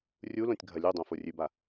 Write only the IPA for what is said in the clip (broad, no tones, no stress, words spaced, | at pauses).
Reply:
rʲulõtʲ ɡʱɐlʲudˤõ forʲʉba